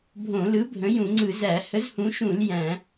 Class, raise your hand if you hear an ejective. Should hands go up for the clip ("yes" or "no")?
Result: no